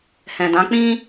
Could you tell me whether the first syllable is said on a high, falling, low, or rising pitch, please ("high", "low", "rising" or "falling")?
low